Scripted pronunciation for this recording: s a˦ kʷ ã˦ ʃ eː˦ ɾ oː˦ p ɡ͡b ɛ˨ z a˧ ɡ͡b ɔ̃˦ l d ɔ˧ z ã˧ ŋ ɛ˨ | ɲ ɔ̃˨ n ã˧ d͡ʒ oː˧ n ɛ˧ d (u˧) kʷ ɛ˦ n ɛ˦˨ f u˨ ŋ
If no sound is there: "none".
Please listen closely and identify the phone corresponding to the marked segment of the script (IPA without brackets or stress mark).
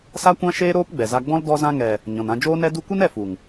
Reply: u˧